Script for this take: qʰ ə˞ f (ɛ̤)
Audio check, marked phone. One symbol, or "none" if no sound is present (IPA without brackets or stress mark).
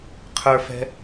ɛ̤